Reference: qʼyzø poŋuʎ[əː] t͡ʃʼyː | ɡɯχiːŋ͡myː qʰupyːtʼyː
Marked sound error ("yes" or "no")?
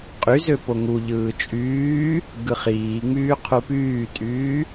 yes